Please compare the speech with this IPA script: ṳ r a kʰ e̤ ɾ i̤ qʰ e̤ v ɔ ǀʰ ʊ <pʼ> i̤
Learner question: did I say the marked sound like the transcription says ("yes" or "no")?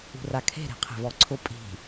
yes